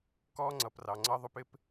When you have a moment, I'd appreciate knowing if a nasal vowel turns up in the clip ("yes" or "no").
no